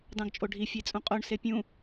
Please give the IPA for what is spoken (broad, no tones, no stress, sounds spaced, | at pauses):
d ɑ̃ ɡ t͡ʃʼ o ɖʱ i fʲ e t͡sʼ ũ qʼ o ɳ s e pʲ ũ